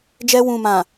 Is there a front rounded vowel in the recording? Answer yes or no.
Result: no